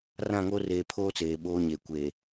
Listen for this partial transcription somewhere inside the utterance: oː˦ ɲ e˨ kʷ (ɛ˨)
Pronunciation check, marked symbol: incorrect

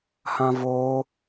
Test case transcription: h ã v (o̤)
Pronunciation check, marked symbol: incorrect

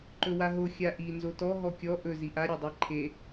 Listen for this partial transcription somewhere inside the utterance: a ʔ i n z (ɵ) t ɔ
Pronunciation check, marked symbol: incorrect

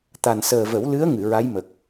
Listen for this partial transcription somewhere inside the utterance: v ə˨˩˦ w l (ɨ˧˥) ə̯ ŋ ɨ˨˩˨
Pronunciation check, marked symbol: correct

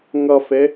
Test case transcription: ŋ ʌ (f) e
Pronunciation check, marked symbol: correct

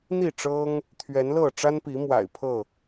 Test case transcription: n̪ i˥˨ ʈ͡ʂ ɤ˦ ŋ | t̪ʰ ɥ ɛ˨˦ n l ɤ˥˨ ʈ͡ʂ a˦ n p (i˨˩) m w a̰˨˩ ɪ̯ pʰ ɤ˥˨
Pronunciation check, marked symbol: incorrect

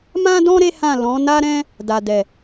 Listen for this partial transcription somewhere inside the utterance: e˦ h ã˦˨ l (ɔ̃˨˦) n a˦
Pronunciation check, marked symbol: correct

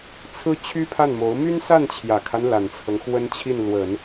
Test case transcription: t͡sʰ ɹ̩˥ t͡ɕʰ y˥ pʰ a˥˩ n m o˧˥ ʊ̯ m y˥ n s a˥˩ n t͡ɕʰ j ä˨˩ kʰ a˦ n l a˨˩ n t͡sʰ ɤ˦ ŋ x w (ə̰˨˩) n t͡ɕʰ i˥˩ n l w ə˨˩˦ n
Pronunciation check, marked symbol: incorrect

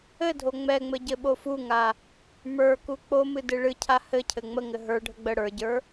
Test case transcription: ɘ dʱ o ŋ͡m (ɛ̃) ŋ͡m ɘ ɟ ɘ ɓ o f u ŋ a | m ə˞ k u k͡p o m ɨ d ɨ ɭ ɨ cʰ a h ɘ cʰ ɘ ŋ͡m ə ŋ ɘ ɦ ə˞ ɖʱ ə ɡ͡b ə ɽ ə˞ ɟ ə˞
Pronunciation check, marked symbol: incorrect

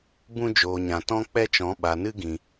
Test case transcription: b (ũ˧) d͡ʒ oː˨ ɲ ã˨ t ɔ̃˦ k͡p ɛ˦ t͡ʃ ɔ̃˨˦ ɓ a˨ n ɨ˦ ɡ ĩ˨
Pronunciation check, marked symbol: correct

